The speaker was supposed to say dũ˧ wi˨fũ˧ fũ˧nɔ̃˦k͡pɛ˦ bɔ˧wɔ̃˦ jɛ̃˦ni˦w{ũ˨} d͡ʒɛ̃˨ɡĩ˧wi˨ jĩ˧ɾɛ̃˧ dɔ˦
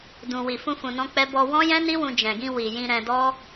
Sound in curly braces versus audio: incorrect: ũ˧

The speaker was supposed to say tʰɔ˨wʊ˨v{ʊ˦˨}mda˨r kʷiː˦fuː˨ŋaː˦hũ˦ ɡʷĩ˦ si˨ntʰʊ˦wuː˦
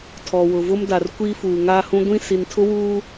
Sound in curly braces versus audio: incorrect: ʊ˦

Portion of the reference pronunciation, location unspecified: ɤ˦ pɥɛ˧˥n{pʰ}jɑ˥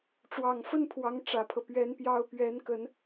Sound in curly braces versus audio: incorrect: p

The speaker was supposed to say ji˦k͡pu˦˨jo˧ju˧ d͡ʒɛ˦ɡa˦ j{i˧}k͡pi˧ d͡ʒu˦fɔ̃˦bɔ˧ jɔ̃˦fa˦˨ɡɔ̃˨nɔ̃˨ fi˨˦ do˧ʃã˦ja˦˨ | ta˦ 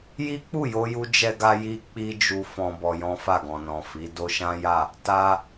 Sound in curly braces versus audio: correct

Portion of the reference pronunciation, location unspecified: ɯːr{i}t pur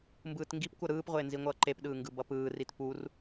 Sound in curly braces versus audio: correct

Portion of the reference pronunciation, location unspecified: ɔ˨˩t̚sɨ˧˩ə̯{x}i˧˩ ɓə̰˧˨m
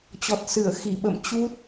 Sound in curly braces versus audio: correct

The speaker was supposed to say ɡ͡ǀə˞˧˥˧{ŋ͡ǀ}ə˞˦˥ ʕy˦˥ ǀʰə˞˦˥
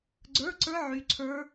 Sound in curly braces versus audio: incorrect: ǀ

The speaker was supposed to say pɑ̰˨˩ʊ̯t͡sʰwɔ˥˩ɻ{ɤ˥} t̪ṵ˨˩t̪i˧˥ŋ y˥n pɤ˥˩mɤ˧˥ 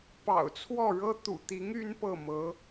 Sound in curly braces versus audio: correct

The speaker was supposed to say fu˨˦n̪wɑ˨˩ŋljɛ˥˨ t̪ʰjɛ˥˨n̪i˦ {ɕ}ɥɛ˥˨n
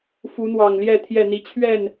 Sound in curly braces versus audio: incorrect: t͡ɕʰ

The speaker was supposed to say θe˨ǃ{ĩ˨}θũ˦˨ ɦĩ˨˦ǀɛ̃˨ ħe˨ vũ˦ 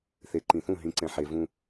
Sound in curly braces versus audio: correct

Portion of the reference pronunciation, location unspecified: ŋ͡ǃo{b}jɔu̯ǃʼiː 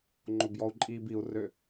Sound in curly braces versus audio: correct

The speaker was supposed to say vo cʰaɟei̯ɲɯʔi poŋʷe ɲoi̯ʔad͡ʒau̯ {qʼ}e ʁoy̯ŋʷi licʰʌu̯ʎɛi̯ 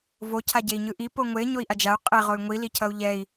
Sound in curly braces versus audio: correct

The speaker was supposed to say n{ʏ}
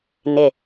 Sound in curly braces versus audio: incorrect: ɪ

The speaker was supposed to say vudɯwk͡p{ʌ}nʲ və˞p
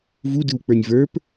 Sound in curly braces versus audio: incorrect: ə˞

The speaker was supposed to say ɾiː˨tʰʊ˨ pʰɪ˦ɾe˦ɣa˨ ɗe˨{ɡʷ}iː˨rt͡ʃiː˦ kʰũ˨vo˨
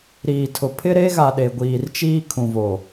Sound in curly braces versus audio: correct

